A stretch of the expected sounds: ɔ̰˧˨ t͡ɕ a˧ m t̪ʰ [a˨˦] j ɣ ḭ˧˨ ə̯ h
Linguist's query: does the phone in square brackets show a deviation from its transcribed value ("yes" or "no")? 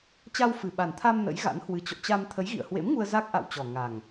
yes